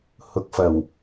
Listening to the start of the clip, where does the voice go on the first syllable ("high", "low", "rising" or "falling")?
rising